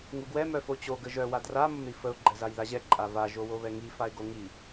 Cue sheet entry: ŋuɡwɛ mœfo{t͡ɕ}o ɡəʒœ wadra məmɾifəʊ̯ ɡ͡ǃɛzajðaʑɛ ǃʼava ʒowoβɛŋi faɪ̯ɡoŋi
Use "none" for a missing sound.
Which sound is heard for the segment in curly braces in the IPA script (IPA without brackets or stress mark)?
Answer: t͡ɕ